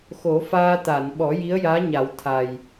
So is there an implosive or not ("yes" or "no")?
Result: yes